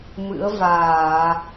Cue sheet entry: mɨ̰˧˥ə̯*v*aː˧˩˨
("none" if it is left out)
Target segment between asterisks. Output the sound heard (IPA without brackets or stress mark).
v